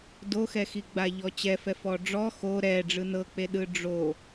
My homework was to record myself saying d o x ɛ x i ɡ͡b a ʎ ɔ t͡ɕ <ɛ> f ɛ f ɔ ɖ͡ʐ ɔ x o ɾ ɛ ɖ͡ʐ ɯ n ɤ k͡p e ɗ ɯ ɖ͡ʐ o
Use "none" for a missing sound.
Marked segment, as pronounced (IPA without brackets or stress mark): ɛ